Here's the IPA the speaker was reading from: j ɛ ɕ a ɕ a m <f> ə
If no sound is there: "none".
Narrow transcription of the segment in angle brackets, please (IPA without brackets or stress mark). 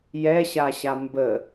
b